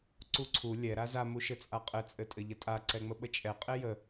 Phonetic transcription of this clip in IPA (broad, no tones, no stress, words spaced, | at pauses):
ǀuǀʰu lʲɛ ɾaza muʃɘt͡sʼaqʼɘ t͡sʼɘtʼɘʎətʼa ǀɛŋ͡məɓət͡ʃʼɛ qʼejə